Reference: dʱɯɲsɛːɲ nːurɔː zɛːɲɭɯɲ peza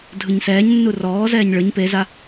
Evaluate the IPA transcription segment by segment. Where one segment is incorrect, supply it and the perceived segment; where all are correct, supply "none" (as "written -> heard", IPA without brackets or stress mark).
none